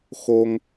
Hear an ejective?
no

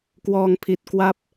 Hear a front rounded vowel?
no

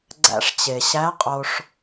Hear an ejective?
yes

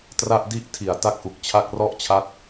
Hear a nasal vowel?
no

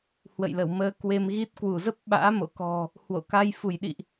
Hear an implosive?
yes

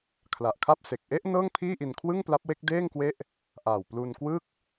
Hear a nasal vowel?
no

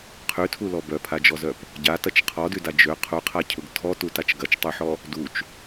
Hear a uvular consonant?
yes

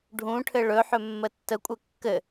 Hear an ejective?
yes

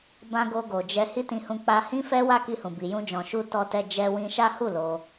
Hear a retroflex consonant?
no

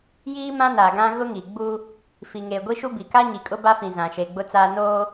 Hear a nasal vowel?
yes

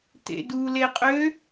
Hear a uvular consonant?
yes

